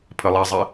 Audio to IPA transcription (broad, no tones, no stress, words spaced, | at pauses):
pʰəlˠɛzˤi